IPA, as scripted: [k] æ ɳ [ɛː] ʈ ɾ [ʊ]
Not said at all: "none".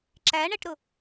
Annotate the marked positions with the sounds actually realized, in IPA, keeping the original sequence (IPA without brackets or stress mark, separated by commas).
ǁ, ɛ, ʊ